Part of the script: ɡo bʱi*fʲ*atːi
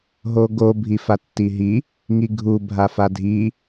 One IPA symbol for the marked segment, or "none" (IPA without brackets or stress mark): f